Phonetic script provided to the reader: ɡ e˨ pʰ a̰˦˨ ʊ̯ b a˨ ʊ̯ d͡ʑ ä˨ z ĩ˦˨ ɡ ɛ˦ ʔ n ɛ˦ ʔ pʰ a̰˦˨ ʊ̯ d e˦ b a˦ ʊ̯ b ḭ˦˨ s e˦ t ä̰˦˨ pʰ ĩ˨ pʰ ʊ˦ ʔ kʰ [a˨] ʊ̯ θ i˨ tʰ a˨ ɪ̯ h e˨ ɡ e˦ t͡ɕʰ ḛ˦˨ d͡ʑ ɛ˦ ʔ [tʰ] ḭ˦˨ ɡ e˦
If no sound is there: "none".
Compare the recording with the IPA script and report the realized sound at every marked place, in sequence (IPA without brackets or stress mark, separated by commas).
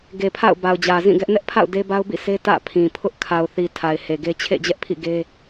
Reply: a˨, pʰ